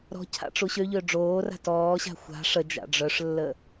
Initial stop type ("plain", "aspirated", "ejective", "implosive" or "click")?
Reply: aspirated